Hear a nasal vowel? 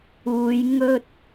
no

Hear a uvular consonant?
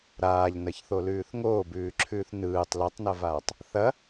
no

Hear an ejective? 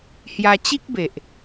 no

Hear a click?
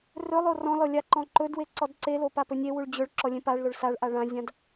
yes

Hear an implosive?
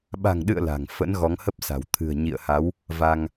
yes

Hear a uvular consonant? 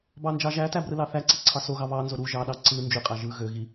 yes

